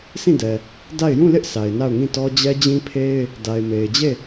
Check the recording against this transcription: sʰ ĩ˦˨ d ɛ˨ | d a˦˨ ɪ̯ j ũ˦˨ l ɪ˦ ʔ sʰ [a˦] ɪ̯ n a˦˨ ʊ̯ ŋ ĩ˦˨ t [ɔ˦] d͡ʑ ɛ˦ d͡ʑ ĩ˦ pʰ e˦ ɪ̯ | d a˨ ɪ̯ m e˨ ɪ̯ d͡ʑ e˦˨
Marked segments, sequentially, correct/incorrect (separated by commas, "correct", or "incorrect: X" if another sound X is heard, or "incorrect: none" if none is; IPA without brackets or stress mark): incorrect: a˨, correct